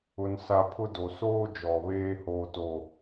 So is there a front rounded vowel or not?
no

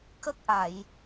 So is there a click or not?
no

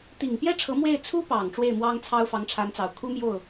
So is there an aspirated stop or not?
yes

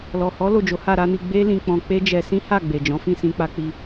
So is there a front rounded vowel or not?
no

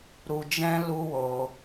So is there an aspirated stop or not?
no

